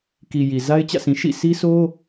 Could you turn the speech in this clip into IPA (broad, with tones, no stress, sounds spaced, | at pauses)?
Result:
k i˨ j i˨ z a˦ ɪ̯ t͡ɕ ä̰˦˨ sʰ ĩ˨ ʃ ḭ˦˨ s i˦ s o˦